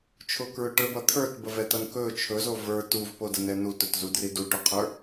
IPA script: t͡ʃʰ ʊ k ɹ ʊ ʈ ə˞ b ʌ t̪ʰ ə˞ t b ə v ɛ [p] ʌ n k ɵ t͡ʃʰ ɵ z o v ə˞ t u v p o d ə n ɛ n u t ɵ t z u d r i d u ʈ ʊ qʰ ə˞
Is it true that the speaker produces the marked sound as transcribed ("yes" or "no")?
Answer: no